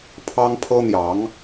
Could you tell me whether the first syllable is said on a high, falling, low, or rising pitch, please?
high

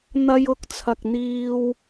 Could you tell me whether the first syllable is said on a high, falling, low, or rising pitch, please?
high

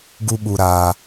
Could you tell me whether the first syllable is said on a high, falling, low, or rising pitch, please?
high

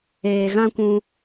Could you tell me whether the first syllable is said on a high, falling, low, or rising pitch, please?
low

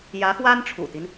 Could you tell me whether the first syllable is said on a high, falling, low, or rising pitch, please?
rising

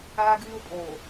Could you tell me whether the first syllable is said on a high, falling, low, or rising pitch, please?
high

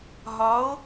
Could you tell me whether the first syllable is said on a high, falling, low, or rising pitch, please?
rising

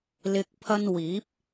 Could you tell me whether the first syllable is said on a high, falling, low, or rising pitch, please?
low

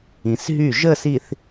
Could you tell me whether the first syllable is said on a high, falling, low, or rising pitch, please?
low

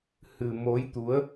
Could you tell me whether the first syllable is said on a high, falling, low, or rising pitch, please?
low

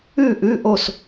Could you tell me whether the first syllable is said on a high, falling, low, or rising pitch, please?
falling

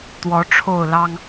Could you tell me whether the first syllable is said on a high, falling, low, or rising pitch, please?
rising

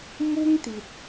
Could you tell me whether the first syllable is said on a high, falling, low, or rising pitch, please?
high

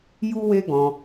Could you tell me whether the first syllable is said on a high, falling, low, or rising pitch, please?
high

